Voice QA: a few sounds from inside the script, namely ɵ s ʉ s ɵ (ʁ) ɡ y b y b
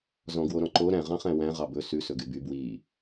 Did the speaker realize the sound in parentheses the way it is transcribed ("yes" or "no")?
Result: no